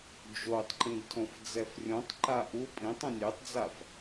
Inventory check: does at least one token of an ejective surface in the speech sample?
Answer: yes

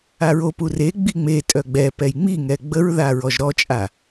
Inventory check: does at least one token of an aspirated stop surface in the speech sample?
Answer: no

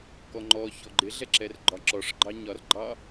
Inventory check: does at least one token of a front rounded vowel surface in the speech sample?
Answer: no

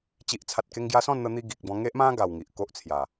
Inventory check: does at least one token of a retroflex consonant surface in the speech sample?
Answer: no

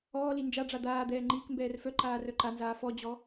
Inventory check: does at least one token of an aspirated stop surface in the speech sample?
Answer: no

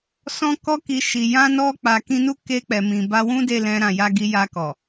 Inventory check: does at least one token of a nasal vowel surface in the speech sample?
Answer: yes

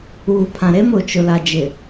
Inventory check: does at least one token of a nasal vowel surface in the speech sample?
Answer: yes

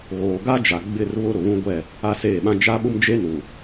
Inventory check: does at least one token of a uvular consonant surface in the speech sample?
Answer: no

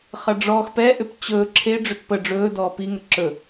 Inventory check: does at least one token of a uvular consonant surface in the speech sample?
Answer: yes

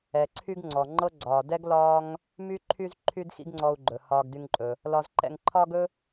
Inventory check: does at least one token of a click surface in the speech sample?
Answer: yes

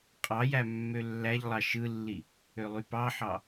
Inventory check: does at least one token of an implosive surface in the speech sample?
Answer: no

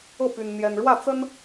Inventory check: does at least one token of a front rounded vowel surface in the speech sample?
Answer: yes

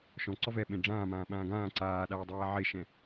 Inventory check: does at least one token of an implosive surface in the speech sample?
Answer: yes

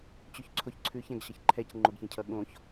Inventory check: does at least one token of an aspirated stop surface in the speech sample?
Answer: yes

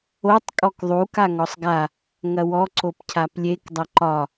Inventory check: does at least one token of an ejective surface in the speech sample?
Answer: yes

